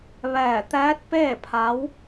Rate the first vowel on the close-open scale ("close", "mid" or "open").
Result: mid